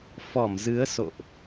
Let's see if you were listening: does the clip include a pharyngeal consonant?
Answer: no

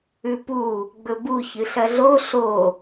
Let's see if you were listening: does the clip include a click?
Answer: no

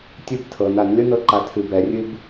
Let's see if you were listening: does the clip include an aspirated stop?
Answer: yes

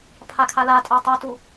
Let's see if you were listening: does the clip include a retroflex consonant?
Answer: no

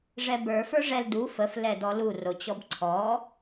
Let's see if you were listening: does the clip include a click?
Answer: yes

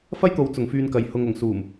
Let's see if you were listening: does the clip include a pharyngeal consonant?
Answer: no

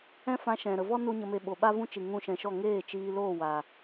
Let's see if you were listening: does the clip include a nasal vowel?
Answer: yes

